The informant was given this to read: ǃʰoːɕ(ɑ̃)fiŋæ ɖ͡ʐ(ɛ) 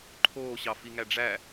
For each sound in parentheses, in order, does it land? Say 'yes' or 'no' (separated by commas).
no, no